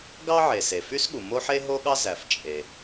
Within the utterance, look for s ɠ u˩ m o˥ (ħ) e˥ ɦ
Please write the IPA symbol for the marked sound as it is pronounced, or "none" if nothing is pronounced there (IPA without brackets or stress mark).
ħ